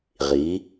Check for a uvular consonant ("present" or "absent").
present